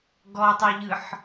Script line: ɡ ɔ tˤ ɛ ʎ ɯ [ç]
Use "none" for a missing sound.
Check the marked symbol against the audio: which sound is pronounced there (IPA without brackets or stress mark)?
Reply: ħ